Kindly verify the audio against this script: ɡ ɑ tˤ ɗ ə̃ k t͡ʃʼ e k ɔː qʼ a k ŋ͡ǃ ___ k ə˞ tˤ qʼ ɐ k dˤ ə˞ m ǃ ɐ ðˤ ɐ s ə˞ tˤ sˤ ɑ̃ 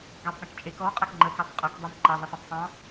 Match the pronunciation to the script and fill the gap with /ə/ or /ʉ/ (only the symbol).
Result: ə